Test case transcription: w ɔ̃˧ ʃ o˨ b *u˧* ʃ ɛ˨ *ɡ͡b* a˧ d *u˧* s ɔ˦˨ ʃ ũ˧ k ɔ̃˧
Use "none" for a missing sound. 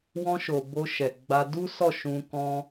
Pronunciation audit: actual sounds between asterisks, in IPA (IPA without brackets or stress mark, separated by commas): o˧, ɡ͡b, u˦